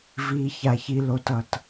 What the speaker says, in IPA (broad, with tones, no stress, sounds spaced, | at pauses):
v iː˩ ç a˩ ç i˩ l o˩ t ʌ˩ t